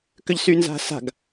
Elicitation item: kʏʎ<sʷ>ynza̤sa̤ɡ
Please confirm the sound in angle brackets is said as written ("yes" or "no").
no